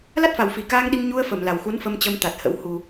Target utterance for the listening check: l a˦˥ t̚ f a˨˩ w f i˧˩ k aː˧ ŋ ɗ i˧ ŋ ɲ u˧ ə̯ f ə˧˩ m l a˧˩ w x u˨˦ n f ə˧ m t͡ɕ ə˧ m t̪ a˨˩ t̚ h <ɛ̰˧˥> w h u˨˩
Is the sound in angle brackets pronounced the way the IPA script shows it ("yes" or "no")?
no